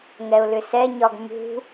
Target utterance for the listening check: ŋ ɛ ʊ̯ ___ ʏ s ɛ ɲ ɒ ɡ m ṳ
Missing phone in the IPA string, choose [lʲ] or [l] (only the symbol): l